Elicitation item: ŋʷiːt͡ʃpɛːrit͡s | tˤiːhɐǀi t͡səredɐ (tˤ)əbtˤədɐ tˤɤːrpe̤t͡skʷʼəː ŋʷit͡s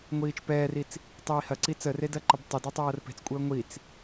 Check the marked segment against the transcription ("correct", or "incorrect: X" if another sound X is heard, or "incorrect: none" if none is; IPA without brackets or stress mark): incorrect: ǃ